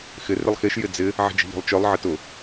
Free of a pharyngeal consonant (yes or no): no